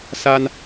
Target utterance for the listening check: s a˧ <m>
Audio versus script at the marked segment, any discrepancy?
yes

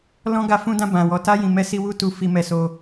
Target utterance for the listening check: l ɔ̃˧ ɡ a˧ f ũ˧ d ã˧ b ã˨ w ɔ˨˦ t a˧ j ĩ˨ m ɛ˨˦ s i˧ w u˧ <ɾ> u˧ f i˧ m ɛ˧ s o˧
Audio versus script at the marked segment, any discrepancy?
yes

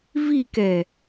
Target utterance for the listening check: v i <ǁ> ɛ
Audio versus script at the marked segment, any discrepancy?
yes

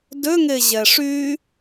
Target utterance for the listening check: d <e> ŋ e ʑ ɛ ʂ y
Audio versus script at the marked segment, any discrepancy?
yes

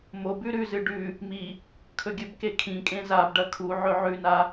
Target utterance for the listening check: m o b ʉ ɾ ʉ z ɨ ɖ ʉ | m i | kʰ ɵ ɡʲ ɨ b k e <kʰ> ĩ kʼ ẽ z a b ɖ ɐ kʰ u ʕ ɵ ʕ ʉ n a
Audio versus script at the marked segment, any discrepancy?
no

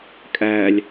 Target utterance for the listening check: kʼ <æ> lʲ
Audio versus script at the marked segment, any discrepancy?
no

